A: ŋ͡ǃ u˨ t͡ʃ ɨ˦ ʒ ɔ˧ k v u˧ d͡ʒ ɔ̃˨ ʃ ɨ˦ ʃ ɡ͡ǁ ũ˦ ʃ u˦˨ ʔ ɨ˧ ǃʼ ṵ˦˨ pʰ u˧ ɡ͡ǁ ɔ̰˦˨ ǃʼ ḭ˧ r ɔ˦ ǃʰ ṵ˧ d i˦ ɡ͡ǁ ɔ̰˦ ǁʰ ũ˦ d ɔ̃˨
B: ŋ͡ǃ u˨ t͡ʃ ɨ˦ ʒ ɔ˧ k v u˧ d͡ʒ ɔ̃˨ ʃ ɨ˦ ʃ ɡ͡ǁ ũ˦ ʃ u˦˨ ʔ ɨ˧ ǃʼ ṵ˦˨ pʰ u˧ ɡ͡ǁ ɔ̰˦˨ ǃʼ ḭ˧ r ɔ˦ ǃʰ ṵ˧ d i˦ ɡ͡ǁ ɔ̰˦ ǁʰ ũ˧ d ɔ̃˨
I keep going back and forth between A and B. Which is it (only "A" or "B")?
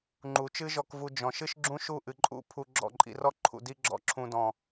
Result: B